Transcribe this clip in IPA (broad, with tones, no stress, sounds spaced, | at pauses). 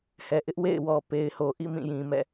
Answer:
h ɛ˨ ʔ ɪ˦ ʔ w ḛ˦˨ ɪ̯ w ɔ˨ p e˨ ɪ̯ h o˨ ʔ ḭ˦˨ m ĩ˦˨ j ĩ˨ m ɛ̰˦˨